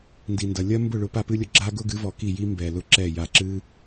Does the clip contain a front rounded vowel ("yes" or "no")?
no